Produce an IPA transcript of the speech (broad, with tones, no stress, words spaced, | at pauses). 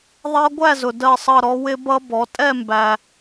ðˤɑ˦˥ɡʷæ˥˧zʊ˨ dɜ˥˧sˤʌ˥˧ɾɔ˦˥ wɪ˦˥bʌ˦˥bɔ˩˥ tʼɛ˥˧ mbæ˨